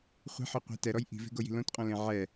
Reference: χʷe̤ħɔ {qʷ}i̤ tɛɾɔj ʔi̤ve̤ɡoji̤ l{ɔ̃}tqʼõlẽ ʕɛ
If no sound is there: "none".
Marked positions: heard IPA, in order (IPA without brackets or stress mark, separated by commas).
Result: qʷ, õ